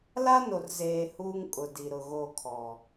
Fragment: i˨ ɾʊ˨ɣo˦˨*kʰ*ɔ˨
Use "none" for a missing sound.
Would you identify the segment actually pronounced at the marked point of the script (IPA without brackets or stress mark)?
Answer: kʰ